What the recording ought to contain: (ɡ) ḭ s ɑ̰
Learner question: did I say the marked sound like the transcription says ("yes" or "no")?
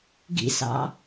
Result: yes